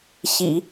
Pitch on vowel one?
low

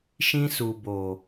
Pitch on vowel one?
high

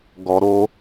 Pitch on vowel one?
low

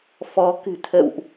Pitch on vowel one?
rising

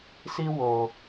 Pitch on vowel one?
high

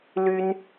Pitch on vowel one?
high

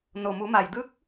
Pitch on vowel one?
low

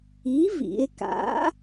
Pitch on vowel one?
rising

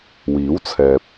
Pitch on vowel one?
rising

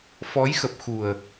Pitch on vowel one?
rising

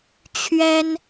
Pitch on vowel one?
high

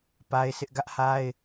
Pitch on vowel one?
high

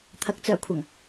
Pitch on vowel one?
rising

